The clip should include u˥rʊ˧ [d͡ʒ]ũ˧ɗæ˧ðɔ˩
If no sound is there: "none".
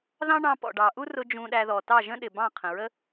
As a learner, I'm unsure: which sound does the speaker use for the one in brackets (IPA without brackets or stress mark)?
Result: d͡ʒ